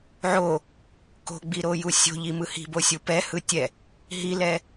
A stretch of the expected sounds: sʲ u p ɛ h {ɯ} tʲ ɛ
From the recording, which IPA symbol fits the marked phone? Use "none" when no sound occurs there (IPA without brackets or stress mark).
ɯ